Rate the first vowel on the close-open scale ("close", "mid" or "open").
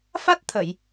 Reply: open